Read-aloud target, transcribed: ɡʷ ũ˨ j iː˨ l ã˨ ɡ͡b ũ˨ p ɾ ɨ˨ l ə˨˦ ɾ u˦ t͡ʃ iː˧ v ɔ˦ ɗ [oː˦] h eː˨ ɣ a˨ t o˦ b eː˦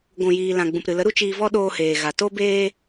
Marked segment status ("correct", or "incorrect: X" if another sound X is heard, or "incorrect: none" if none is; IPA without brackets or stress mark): incorrect: oː˧